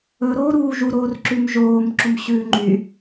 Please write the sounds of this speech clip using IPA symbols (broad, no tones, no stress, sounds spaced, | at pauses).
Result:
ɵ ɾ oː ɾ uː ʒ u ɾ oː r ǁ ʉ m ʒ oː m ǁ o m ɕ ʉː ŋ͡ǃ y